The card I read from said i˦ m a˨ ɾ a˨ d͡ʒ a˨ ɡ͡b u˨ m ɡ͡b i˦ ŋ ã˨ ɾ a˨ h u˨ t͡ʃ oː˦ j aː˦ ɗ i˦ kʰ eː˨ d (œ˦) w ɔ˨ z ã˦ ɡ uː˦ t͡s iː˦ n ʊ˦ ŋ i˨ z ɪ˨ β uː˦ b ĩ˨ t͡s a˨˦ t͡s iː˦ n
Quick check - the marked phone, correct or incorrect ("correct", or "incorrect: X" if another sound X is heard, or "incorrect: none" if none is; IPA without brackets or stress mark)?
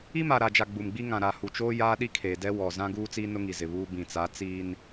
incorrect: ɛ˦